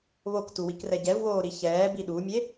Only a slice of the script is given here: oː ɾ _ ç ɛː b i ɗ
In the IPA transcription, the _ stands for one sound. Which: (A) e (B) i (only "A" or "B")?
B